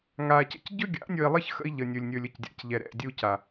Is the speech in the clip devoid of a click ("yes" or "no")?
yes